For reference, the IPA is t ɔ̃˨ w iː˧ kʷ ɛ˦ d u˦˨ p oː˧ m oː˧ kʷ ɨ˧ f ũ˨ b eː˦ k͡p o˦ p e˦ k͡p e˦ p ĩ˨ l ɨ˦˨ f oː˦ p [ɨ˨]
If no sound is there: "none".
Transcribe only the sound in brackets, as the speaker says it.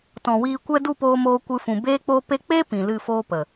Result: ə˨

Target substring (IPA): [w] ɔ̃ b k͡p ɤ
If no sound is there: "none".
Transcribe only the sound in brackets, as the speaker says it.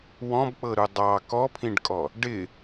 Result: w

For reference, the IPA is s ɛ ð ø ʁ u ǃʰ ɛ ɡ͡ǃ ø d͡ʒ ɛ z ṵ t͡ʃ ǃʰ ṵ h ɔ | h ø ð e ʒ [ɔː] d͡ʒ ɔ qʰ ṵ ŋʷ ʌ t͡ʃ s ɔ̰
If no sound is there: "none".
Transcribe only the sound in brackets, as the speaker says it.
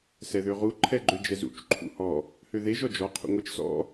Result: ɔ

